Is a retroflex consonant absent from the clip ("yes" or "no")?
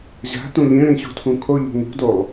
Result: no